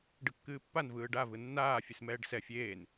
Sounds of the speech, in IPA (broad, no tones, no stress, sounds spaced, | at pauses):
ɖ ɯ kː ɨː pː a n v ɯː ɖ a v ɯ nː aː fʲ ɨ s m ɛː ɖ s ɛ fʲ eː n